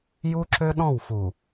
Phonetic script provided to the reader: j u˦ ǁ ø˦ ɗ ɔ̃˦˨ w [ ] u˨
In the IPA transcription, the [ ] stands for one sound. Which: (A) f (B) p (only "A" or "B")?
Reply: A